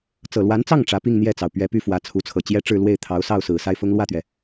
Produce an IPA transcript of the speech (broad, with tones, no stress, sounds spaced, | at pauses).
t͡s ɤ˨˩ l w a˧˥ n t͡s ɑ˥˩ ŋ ʈ͡ʂ ä˧˥ p i˥˧ ŋ n̪ j ɛ˥˩ t͡s ɑ˩ ʊ̯ p ɥ ɛ˧˥ p y˥˩ f w ä˧˥ t͡sʰ u˧˥ t͡sʰ ɤ˨˩ t͡ɕ j ɛ˥ ʈ͡ʂ ɻ̩˥˧ l w e˥˩ ɪ̯ t̪ʰ ɑ˧˥ ʊ̯ s ɑ˥˩ ʊ̯ s ɹ̩˨˩ s a˥˩ ɪ̯ f ʊ˥ ŋ l w ä˥˩ t̪ ɥ ɛ˩